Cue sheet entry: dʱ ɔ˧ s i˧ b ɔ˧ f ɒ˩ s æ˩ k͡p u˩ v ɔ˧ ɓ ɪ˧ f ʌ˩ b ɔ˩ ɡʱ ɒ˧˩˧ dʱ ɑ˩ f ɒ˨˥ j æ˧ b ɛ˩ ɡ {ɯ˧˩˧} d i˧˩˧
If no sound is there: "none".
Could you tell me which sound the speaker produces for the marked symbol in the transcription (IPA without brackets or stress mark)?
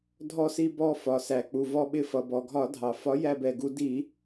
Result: u˧˩˧